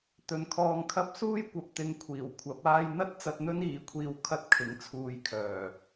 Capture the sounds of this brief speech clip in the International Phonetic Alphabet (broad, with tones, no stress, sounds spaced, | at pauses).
t̪ ɵ˨ n kʰ ɔː˧ ŋ kʰ ɐ˥ p̚ s uː˥ j kʷ ɐ˨ p̚ t̪ ɪ˨˧ ŋ kʷʰ iː˨˩ w kʷʰ ɐ˨˥ p̚ aː˧ j n̪ ɐ˥ t̚ t͡s ɐ˧ t̚ n̪ ɵ˥ n iː˨˧ kʷʰ iː˧ w kʰ ɐ˥ t̚ kʰ ɪ˨˥ ŋ t͡sʰ uː˧ j kʰ œː˨˩